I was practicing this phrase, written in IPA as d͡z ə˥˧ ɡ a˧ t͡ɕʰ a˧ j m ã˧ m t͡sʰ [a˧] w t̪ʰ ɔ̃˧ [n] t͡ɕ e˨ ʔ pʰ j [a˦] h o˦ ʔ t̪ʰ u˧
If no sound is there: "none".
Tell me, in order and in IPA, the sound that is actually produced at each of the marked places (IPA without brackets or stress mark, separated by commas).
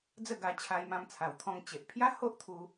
a˨˩, ŋ, a˦